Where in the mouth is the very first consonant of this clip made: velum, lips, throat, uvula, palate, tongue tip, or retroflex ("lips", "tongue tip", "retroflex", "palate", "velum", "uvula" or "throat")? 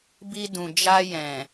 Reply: lips